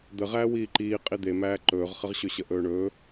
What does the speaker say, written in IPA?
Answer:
d̪ ə ʁ æː w iː ǃ iː qʼ i d̪ e m æː ǃ ɵː ʁ χ ə ʁ ɕ ɵ ɕ ə ʔ ɵː ɳ ɵː

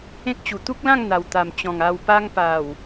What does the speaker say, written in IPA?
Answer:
ẽ˦ k̚ t͡ɕ u˨˩ t̪ u˦ k̚ l ã˥˧ ŋ n̪ a˨˩ w t̪ a˨˩ m t͡ɕ ɔ̃˨˩ ŋ a˨˩ w p a˧ ŋ p a˨˩ w

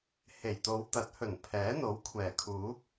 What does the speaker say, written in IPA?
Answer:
h e˨˩ j t̪ o˨˧ w t̪ ɐ˨˥ t̚ h ɵ˨˩ n pʰ ɛː˨˥ n̪ o˨˥ w kʷʰ ɛː˨˩ kʰ uː˨˥ k̚

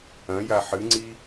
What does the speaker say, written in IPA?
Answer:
ɐ̃ j a ħ ɨ ŋ͡ǀ i

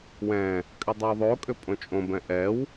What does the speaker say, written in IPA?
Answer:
w ɛ̃ | kʼ ʏ dˤ o w ðˤ o kʼ ʏ pʼ õ t͡ʃʼ õ b ɛ̃ ʔ ɛ w

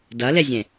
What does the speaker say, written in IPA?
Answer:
d ɐ l e zʲ ẽ

